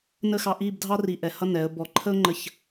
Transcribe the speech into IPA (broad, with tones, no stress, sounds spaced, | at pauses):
n ə˥ x ɑ˧ ʔ i˥˧ b dʱ ɑ˥ r i˧˩ ʔ ɛ˧˩ h ʌ˥ n ɛ˩˧ ə̯ b ɔ˧˩ ǃʰ ə˥ ʊ̯ ŋ͡ǃ ə˧˩ ç